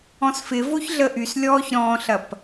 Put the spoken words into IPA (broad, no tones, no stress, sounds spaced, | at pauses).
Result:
ɔ̃ s f ɪ v o ç ɮ ə ʔ y s lʲ ɔː ç ɾ ɔ̃ ɬ ɐ p